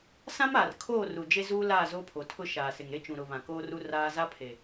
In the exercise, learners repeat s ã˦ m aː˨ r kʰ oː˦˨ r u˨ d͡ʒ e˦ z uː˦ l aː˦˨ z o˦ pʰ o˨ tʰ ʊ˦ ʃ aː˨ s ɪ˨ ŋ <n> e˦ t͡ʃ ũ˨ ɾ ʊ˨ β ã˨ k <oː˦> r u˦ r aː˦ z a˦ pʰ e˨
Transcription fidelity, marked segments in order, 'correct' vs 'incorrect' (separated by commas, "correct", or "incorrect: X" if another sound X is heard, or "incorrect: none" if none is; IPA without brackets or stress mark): incorrect: ɾ, correct